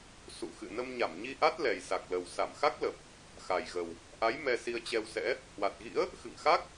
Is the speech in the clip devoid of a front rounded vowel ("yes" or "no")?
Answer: yes